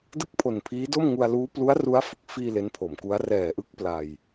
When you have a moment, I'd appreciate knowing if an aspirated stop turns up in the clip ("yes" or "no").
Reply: yes